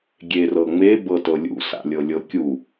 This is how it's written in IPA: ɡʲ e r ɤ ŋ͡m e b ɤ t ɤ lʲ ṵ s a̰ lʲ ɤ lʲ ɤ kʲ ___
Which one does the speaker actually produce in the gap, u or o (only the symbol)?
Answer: u